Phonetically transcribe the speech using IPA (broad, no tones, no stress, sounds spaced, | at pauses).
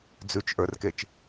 d͡z ʉ t͡ʃ ʔ ə˞ r k e t͡ʃ